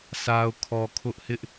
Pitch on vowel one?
low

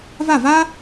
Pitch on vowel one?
falling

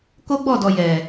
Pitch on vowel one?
high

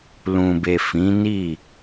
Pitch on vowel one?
low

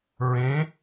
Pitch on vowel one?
rising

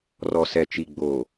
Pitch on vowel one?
low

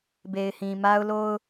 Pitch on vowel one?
low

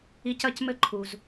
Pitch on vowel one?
high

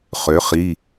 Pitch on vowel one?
rising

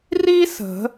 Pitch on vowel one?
high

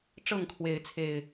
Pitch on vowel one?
falling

